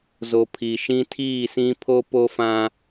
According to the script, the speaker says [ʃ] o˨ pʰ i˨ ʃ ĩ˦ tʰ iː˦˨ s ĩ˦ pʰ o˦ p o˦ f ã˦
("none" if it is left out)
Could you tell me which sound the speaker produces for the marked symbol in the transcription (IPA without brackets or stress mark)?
z